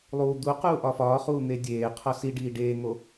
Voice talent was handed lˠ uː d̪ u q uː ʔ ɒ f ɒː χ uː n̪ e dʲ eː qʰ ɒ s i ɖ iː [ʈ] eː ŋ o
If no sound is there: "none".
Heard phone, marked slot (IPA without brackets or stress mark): ɖ